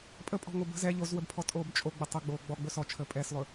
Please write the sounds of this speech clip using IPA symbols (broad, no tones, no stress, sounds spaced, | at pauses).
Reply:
pʼ ə pʼ ɔ̤ ŋ o b ə̤ z ɛ ʎ o z w ə b pʰ ɔ tʼ oː b t͡ʃʼ o ɡ͡b ə tˤ ə ɡ͡b oː ɡ͡b ɔ ɡ͡b ɵ s ɔ t͡ʃʰ əː pʼ ɛː s lˠ ɵ